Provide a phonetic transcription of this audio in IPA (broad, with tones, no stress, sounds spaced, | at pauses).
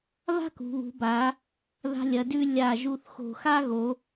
β a̤˥ k ṳ˩˧ β ṳ˩˧ b a˩˧ | ð a̤˧ lʲ ɐ˩˧ d ʉ˧ lʲ a˧˩ ʒ u˧ θ x o̤˧˩ x a˥ ɣ o˩˧